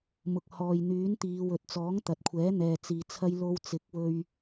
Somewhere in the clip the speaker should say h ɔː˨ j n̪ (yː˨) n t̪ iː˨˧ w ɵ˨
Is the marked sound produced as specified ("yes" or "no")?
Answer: no